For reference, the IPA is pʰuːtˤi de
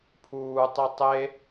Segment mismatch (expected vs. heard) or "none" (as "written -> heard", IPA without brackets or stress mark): d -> tˤ